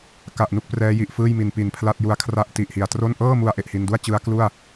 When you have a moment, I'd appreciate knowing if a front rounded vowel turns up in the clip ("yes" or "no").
no